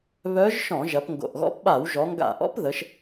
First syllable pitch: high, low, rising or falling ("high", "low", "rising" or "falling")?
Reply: rising